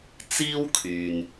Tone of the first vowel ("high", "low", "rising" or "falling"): high